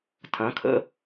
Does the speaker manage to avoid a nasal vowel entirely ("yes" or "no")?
no